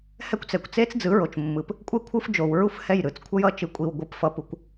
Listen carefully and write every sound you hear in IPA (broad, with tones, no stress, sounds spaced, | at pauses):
h ɛ˦ kʷ t͡s ɛ˨ kʷ t͡s e˦ t͡s d͡z ɯ˨˦ ɹ o˨ t͡ʃ mː ɯ˨ p | kʷʼ ɛ˦ kʷʰ ɯ˦ f d͡ʒ o˨ w ɹ u˦ f h ɛ˦˨ j ɾ ɯ˨˦ t͡s kʷʰ ʌ˦ j ʌ˦ t͡ʃ ɯ˨ kʷʼ i˨ w ɡʷ ɯ˨ p f ʌ˨ p u˨ kʷ